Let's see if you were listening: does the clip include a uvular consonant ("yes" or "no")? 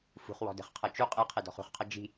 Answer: yes